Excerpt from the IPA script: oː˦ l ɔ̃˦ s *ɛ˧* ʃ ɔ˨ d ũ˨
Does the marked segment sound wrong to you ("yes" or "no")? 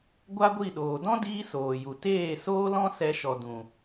no